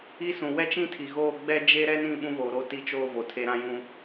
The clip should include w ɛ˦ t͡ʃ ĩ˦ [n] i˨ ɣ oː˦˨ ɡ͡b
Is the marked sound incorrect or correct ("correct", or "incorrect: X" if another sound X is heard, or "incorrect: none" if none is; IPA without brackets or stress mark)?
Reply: incorrect: tʰ